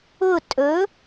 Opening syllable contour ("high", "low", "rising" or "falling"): falling